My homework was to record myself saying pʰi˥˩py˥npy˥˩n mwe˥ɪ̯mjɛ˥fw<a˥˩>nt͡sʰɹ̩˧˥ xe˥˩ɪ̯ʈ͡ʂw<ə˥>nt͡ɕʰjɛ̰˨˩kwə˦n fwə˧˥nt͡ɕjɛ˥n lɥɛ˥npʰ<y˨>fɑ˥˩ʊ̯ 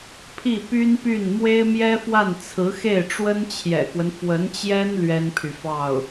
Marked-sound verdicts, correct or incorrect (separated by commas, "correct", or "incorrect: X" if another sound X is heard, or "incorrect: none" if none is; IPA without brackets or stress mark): correct, correct, correct